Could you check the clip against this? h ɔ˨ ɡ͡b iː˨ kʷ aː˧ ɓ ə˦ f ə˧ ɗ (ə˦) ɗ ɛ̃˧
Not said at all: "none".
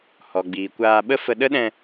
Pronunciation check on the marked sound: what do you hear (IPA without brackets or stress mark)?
ə˦